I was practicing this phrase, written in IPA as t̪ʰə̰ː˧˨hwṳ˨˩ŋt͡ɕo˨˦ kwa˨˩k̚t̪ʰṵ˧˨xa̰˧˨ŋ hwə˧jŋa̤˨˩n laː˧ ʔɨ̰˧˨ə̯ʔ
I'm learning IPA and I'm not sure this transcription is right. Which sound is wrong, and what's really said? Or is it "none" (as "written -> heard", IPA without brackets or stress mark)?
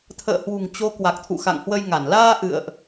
a̤˨˩ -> a˧˩